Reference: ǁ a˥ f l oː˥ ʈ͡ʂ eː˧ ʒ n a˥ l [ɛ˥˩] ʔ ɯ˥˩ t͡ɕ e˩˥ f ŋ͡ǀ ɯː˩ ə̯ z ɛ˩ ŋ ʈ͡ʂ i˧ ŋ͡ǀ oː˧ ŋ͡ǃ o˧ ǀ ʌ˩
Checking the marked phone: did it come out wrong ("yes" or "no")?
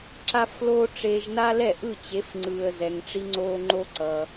no